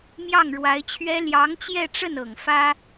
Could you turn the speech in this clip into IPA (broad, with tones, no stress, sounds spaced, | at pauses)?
m j ɑ˥˩ ŋ ɻ w a˧˥ ɪ̯ t͡ɕʰ ɥ ɛ˥ l j ɑ˧˥ ŋ t͡ɕ j ɛ˥˧ ʈ͡ʂ ə˥˩ n ɤ˨˩ ŋ f ä˥